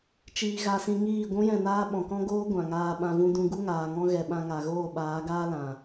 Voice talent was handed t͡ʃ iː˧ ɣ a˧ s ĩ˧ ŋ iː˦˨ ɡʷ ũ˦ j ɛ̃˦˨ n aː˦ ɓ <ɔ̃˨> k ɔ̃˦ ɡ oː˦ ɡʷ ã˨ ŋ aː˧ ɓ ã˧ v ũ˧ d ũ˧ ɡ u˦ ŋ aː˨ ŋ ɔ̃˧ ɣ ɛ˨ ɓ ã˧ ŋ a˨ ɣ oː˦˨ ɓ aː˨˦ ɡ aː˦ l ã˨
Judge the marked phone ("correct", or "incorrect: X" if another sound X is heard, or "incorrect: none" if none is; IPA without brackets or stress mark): correct